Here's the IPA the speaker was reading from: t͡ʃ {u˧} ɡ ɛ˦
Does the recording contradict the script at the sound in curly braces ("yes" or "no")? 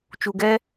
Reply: no